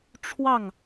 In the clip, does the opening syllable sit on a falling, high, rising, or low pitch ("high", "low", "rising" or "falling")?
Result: falling